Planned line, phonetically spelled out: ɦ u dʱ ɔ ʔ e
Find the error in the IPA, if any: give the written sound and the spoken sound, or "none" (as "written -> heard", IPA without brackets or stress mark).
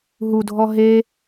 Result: ʔ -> ɦ